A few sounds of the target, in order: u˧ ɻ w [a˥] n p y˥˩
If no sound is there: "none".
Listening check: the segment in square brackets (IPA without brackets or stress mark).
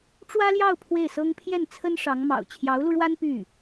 a˥